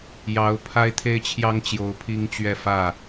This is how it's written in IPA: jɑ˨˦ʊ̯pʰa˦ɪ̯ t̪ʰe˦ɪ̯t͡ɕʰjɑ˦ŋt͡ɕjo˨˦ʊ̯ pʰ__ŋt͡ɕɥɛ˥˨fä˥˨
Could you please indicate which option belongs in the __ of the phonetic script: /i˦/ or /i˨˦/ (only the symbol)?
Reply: i˦